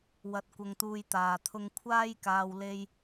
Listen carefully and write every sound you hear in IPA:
w ɐ˧ t̚ kʷ ɐ˧ ŋ t̪ uː˧ j t̪ aː˨ t̪ʰ ʊ˧ ŋ kʷʰ aː˥ j k aː˧ w l e˧ j

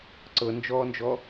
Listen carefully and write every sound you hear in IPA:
ǀ ɤ n d͡ʒ ɔː n d͡ʒ ɔ

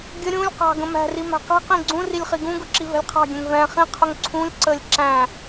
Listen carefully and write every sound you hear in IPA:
ɡʲ ə ɾʲ ũ lʲ q ɑ̤ ɡ ə̃ m æ̤ r i m æ̤ q i̤ q ĩ ɡ͡ǀ ũ r i lʲ χ i ɡ ũ ɡ ʊ ǁ i v ɛ̤ lʲ qʰ ɑ̤ ɡʲ ɛ̃ ŋ v ɛ̃ χ ĩ qʰ ʊ ŋ ǀʰ ũ lʲ ǀ ə lʲ ǁ æ̃

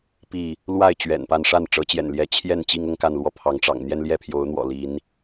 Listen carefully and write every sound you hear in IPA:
p i˥˨ | l w a˥˨ ɪ̯ t͡ɕ ɥ ɛ̰˨˩ n p a˥˨ n ʂ a˥˨ n ʈ͡ʂ ɤ˨˦ t͡ɕ j ɛ̰˨˩ n l j ɛ˨˦ t͡ɕʰ j ɛ˥˨ n t͡ɕ i˦ ŋ ʊ˦ ŋ k a˥˨ n l w ɔ˦ pʰ ɑ˨˦ ŋ ʈ͡ʂ ɑ̰˨˩ ŋ n̪ j ɛ˦ n l j ɛ˥˨ pʰ j o˨˦ ʊ̯ n̪ w ɔ̰˨˩ l i˨˦ n

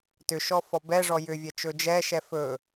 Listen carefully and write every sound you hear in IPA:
t ʏ ʃ ɔ f ɔ b ɛ ʐ ɔ j ʏ vʲ ɛ t͡ʃ ɵ d͡ʒ ɛ ʃ ɛ f ɵ

